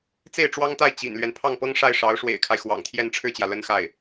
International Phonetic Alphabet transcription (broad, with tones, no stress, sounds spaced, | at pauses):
t͡s e˥˩ ɪ̯ ʈ͡ʂ w ɑ˥ ŋ t̪ a˥˩ ɪ̯ t͡ɕ ḭ˨˩ n l ɥ ɛ˦ n pʰ ɑ˥˩ ŋ p ɤ˥ ŋ ʂ a˥˩ ɪ̯ ʂ ɑ˧˥ ʊ̯ ʂ w ḛ˨˩ ɪ̯ kʰ a˦ ɪ̯ x w ɑ̰˨˩ ŋ t̪ʰ j ɛ˥˧ n ʈ͡ʂʰ ɻ̩˥˩ t͡ɕ j ä˩ l ə˥ n x a˥˩ ɪ̯